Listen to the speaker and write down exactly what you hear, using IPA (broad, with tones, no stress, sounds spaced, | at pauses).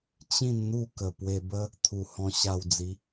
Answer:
t͡ɕ ĩ˥˧ n n̪ u˥˧ k ə˨˩ p w e˧ b ə˦ | t̪ʰ u˨˩ h ɔ̃˧ ɕ a˧ w d͡z i˨˦